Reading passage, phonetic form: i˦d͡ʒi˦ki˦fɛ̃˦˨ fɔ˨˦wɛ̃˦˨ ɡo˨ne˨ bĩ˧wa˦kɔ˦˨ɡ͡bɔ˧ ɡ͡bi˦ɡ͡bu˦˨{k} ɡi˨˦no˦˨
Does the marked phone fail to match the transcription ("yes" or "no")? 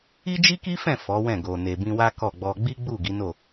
yes